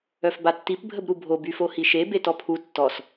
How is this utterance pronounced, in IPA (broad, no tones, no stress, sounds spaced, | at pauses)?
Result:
œ f b a tː i p bʱ ə b ɾ u bʱ o b y f o h i ʃ e b e t ɔ pʰ u tː ɔ s